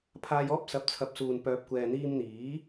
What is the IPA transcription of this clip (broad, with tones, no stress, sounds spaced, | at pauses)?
pʰ aː˧ j ɔː˥ p̚ s ɐ˨ p̚ t͡sʰ ɐ˨˥ p̚ s uː˨ n p œː˨ p̚ kʷ ɛː˨ n̪ iː˧ m n̪ iː˨˥